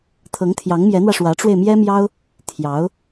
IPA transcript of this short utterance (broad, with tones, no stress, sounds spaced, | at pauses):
t̪ʰ ɤ˧˥ ŋ t̪ʰ j ɑ˧˥ ŋ m j ɛ˧˥ n̪ w ä˧ ʂ w ä˧˥ ʈ͡ʂ w e˧ ɪ̯ m j ɛ˥ m j ɑ˥ ʊ̯ | t̪ʰ j ɑ˧˥ ʊ̯